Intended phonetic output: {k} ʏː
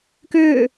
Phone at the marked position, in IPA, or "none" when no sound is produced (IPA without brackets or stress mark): k